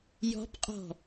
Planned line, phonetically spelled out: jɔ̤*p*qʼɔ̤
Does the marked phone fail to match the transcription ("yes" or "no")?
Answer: no